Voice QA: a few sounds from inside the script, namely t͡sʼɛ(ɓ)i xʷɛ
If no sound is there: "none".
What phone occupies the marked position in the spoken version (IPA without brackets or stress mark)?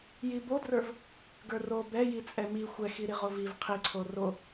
m